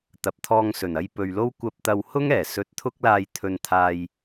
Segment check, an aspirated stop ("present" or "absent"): present